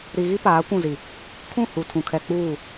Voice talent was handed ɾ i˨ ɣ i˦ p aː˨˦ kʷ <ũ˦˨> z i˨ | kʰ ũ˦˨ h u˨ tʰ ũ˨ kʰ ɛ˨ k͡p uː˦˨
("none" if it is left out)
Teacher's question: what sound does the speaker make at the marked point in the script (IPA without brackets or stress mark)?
ũ˦˨